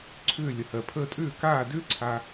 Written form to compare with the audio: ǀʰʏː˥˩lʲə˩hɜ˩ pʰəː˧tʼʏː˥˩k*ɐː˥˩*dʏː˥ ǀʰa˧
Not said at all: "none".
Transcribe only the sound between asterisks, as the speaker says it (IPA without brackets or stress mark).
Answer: aː˥˩